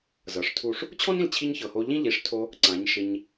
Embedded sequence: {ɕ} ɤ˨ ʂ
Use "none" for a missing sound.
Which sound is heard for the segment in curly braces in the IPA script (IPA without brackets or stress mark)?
z